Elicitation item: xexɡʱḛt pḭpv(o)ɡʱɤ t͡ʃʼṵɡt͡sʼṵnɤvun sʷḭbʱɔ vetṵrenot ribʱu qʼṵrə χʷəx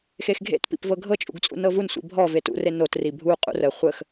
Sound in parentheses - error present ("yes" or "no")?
yes